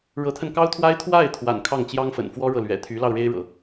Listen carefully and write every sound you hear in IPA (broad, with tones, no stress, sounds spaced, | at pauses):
ɻ ɤ˧˥ t̪ʰ ə˧ n k ɑ˥ ʊ̯ t̪ʰ w a˥ ɪ̯ t̪ʰ w a˥˩ ɪ̯ t̪ʰ w a̰˨˩ n kʰ ɑ˥˩ ŋ t͡ɕ j ɑ˥ ŋ f ə̰˨˩ n f w ɔ˥ ɻ ɤ˨ l ɥ ɛ̰˨˩ t̪ʰ y˧˥ l ɑ˧ ʊ̯ ɻ e˥ ɪ̯ ɻ ɤ̰˨˩˦